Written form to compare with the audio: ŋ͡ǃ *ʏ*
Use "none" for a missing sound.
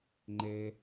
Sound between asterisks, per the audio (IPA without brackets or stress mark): ɛ